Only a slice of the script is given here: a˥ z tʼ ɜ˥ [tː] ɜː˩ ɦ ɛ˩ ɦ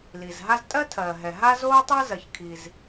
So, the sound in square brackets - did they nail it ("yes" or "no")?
no